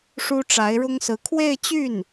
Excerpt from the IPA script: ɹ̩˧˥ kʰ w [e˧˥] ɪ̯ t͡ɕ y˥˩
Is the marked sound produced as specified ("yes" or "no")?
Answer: no